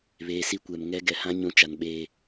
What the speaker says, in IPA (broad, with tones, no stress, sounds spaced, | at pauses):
β eː˨ s i˦ kʷ ɛ˨ m ŋ ɛ˦ ɡ ɛ˨ h ã˦ ɲ ũ˨˦ t͡ʃ a˨ n ɓ eː˦